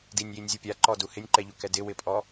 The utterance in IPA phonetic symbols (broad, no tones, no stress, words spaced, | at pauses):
dinʲjinʲzʲu pʲaǃɔdu hɪnʲǃɛʎukɛ dɪwɪpʼɔ